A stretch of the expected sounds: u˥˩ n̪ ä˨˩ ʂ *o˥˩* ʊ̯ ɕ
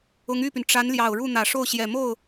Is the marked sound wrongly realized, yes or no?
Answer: no